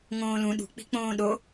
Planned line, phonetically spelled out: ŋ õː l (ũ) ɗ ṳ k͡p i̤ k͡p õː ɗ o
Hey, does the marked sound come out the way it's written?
yes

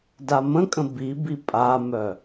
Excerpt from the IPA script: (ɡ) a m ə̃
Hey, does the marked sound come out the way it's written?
no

